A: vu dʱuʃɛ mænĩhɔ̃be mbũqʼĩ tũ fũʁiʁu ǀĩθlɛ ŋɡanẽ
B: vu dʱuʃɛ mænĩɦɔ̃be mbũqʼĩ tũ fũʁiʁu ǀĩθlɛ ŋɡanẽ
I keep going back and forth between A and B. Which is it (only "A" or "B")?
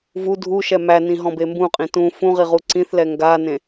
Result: B